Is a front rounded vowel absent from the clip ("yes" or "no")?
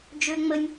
no